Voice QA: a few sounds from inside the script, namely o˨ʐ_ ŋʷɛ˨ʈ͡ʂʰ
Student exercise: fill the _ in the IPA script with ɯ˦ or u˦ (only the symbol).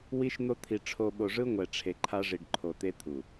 ɯ˦